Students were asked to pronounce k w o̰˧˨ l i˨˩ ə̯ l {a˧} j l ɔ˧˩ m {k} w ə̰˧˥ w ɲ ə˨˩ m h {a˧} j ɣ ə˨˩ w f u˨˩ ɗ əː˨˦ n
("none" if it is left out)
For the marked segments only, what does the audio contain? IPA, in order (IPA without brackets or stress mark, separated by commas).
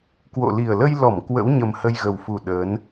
ə˧, k, ə˧